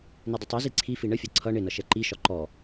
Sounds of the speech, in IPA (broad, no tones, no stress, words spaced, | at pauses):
nidˤətˤɛzi ǀʰifi ɳəfʲɒ ǀʰʌ ɳɪnʌ ʃɛǃiʃɒ ǃɔ